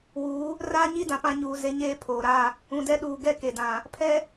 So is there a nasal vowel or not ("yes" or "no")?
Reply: yes